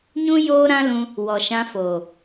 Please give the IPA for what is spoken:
ɲ ũ˦ j oː˦ ɾ ã˦ l ũ˧ | w ɔ˨ ʃ ã˧ f oː˨

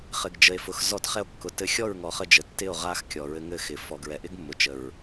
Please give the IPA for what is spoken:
χ ɘ˨ ɡ d͡ʒ ə˨ e̯ f ʊ˨ x z ɔ˧ t χ ɛ˧ o̯ kː ʊ˨ t ɘ˧ xʲ ɔ˦˨ ɹ ŋ ɔ˨˦ χ ə˧ d͡ʒ ə˨ tː ɪ˦˨ o̯ ʁ a˦ x kʲ ɔ˨ ɹ ɘ˧ ŋ ɘ˦˨ x ɪ˧ f ɔ˧ ɡ ɹ ɛ˨ ʔ ɪ˦ ɡ mː ʊ˨ t͡ʃ ə˨ ɹ

